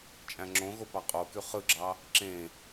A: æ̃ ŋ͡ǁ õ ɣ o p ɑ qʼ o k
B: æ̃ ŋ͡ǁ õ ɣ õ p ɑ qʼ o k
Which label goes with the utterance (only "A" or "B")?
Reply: A